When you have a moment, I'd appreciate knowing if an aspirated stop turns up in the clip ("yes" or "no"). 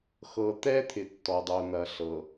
yes